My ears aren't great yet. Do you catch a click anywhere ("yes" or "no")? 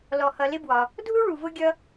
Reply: no